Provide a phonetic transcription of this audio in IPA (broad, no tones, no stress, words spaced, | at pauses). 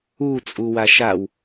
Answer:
u t͡sʼuwaʃaw